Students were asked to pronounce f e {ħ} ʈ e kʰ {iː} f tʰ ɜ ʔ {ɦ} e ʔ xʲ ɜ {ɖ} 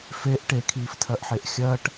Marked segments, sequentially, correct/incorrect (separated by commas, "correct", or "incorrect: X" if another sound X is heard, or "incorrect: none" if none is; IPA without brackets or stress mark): incorrect: ʔ, correct, incorrect: ħ, incorrect: ʈ